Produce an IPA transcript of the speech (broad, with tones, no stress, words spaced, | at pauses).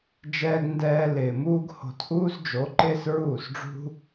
d͡ʒɛː˧ɡ ndɛː˧lɪː˨muː˦ɡho̤˧t ʔuː˦zd͡ʒo˨˦ ǃɪː˦sɹuː˦˨sɖ͡ʐṳ˦